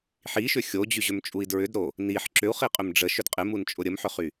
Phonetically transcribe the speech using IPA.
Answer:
ħ i ʃ ʏ xʲ o d͡ʑ y ʑ ʏ m t͡ʃʼ u i̯ d ɹ ʏ d ɾ o | n i ħ ǁ ʏ u̯ χ i qʼ ʏ m ɖ͡ʐ ə ʃ ʏ d qʼ ɪ m u n t͡ʃʼ ʊ ɾʲ ə m ħ ʏ χ y

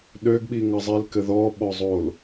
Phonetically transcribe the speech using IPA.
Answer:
ɗ ø ɡ ɓ i ŋ ʌ zˤ i l k ɘ ð ɔ ɓ ɔ zˤ o l

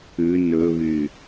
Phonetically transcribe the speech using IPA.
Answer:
ʉ n ɵ β y

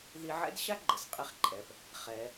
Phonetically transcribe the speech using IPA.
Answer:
ð i˧ ʕ ɛ̰˥ d ɕ a˥ ɡ͡ǃ ə˩ s qʼ i˧ χ ǃʼ ɛ˩ p | χ ɛ˩

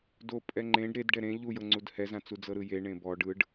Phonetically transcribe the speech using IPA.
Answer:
d o pʼ ɛ ŋ͡ǃ ẽ ɖ ɾ e d ɖ ɛ ɾ ẽ ʎ u j ɤ ŋ͡ǀ u d h ɛ z ã t͡s u d͡z ɤ ɾ ɯ j e ɳ ẽ b ɔ ɖ ɯ ɖ

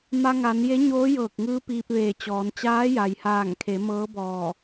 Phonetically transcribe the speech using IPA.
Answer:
m a˧ ŋ a˩˧ n j e˧˥ ɲ oː˧˥ j ɤː˧˩ k̚ ŋ ɯː˧˥ p iː˧ p̚ ʋ eː˧˩ t͡ɕ ɔː˩˧ n t͡ɕ aː˧˥ j a˩ j h aː˧˩ ŋ kʰ e˩˧ m ɤː˧˥ b ɔː˧˩

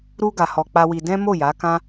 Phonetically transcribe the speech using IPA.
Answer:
ɾ u˦ ɡ a˧ h ɔ˧ k͡p a˦ w i˧ d ɛ̃˦ m o˦˨ j a˨˦ k ã˦

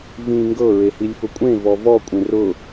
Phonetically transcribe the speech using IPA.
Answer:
v ĩː ŋ ɡ ɤ ɹ e h i lʲ f ʊ kʷʼ ẽ v ɔ v ɔ kʷʼ ẽ r ʊ

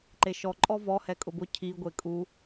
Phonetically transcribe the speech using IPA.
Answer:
ǃ e ʃ ɔ ǃʼ ɔ v ɔ h ɛ kʼ ʊ b ʊ cʰ i ɡʷ e kʼ u

